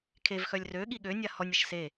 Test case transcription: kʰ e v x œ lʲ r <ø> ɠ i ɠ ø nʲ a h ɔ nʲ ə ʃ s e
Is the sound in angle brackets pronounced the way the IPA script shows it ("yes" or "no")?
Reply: yes